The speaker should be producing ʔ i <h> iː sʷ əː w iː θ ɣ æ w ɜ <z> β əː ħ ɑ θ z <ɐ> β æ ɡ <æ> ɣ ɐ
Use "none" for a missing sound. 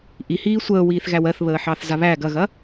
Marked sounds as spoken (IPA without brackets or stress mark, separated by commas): h, θ, a, ɐ